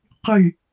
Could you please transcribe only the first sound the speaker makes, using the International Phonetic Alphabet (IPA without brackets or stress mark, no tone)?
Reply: q